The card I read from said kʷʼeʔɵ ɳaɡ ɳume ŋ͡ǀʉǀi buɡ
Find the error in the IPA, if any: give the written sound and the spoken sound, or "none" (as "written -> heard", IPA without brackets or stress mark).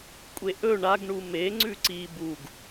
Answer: none